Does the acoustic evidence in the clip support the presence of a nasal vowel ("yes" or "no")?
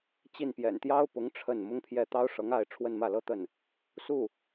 no